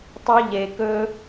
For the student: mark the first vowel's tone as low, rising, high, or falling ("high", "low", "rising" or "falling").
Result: high